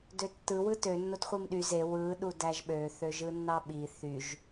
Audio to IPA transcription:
døtːɯ wɯtø nːotχʷimɗy ze wɯ ɗudæʒɓø θøʒɯnːɑɓi θyʒ

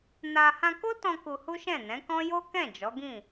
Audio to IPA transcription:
na˧ hã˧ko˦tɔ̃˧ ku˧hu˦ʃɛ̃˦˨ nɛ̃˨˦kɔ̃˦ jo˦kɛ̃˦˨ d͡ʒɔ˨˦ɡĩ˦˨

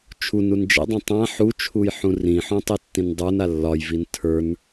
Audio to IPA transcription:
t͡ʃʰun und͡ʒɛ̰dˤũ tˤã ħut͡ʃʰuj ħũrĩħõ tˤitːĩndˤə˞na lːɒjvin tʰə˞n

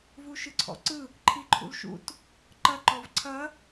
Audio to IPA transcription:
vuʃɯǀʰɔ̰ǀɯ | ǃʰiǃʰṵlʃṵt | ǃɐ ǃɔvǀʰɐ

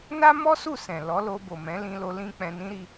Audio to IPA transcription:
na˦mɔ˦su˦˨ sɛ̃˨ lɔ˨˦lo˧ bo˨mɛ̃˨˦lĩ˧lo˧ lĩ˦k͡pɛ̃˧ nĩ˦ɾi˧

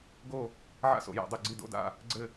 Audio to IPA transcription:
ɡo˦˨ | ʕa̰˥so̰˨˩˦ja̰˨˩˦dˤo˦˨ ɡ͡ǀi˦˨do̰˧˥˧da̰˦˨ | ɡ͡ǀɘ˦˨

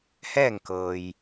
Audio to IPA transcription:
hɛː˥˨ŋkɤː˩j

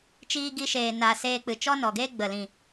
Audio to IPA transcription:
t͡ʃiː˧ɡi˧ʃeː˨ na˨ seː˧ k͡pɨ˨t͡ʃɔ˦nɔ˨ɡeː˦ ɡ͡bə˨lĩ˨

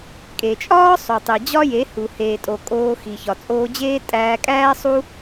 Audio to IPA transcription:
kʼe˨t͡ʃʼɒː˦ sˤo˨tˤe˨ d͡ʑɒ˦je˨˦hu˨ heː˨tʼo˨ kʼoː˧ xi˨çɒ˨ t͡sʼoː˧d͡ʑeː˦ tʼæː˧kʼæː˦ sˤu˦

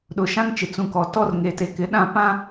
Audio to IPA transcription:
ɗʊ˨ʃã˦ŋt͡ʃɪ˨ t͡sũ˨kɔ˨ tɔ˦r ŋe˨te˨kɪ˨ ɗã˦˨ pã˦

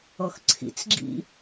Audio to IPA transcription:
ɔxǀʰḭt͡sɡ͡ǁḭ

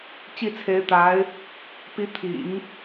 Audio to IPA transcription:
t͡ɕi˥˩t͡sʰe˧˥ɪ̯t̪a˧˥ɪ̯ | pi˧˥t̪ʰḭ˨˩˦ŋ

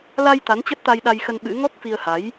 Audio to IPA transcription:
la˧j t̪a˨˦n t͡ɕə˦˥t̚t̪a˧jɗa˧jxə˧n ɓɨ̰˧˥ ŋɔ˦˥k̚fi˧ə̯ha˨˦j

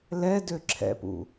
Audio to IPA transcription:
lɛdø ǁʰɛ̰pṵ

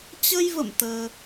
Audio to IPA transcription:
t͡ɕə˧jvə̰˧˨m t̪əː˧

